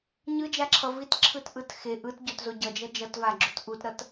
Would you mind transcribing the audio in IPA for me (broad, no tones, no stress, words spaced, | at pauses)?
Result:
ɲɯd͡ʒaǁʰʌ vitǁʰɯtʔɯt xe ʔɯtɟotzo ɟʌd͡ʒʌ d͡ʒʌtvaɡ͡ǁut ʔutɾʌt